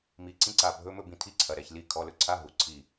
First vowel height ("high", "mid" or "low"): high